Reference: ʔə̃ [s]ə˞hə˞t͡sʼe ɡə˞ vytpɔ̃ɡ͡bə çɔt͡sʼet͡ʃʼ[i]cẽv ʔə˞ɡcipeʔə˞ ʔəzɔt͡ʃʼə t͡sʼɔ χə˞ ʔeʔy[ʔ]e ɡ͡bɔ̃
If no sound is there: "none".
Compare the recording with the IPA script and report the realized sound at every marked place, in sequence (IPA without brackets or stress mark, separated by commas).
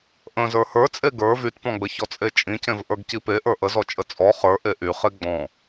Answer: z, ĩ, χ